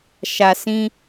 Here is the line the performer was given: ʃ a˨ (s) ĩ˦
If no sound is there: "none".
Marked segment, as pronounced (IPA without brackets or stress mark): s